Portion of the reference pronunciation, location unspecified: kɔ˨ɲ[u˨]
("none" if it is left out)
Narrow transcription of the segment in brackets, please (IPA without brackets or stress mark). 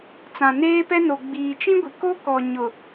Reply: ʊ˨